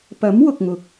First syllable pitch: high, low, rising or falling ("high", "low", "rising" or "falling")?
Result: rising